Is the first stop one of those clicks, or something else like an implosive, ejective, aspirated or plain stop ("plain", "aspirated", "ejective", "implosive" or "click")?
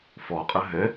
ejective